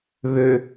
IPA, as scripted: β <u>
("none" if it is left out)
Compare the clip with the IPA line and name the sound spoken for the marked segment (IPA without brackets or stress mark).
ø